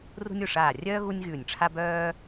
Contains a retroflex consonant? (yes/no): yes